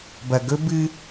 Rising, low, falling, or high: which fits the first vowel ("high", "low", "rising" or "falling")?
low